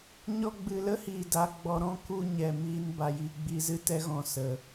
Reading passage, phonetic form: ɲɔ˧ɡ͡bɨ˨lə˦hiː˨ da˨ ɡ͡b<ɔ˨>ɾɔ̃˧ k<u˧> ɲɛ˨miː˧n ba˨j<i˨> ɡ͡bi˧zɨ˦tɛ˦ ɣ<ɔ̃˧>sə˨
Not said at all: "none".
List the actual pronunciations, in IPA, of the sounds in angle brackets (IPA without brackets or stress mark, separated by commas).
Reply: ɔ˨, u˧, i˨, ɔ̃˧